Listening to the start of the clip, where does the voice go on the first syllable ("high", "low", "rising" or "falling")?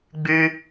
high